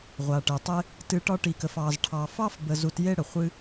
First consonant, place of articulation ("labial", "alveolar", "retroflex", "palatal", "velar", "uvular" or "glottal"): uvular